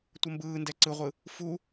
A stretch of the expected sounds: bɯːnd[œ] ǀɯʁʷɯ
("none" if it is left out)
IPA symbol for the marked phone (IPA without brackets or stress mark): ɛ